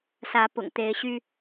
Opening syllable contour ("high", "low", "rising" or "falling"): rising